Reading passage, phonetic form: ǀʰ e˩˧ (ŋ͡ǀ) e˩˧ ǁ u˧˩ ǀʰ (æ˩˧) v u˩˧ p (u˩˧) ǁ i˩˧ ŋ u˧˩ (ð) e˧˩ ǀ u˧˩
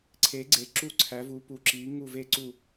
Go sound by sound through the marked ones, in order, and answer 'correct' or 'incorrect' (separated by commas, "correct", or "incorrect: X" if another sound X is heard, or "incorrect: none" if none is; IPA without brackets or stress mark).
incorrect: ɡ͡ǀ, correct, correct, incorrect: v